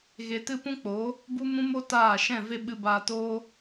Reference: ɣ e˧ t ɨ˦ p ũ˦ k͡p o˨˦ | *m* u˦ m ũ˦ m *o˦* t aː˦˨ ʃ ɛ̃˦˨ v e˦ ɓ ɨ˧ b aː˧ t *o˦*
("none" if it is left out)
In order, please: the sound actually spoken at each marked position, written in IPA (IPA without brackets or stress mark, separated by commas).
b, o˦, oː˦